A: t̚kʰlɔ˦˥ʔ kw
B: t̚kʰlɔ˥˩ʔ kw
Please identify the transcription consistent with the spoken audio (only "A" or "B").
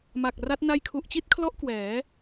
A